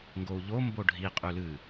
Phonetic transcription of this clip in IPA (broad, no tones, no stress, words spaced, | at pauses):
ŋɡou̯ʎombo ɖʱiqʼʉ lɨ